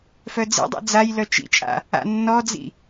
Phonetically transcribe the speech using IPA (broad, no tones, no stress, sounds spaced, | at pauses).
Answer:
f œ d͡z ḭ dˤ ḭ d͡z a j l œ t͡ʃ ḭ t͡ʃʼ a̰ | a̰ nː ɔ d͡z ḭ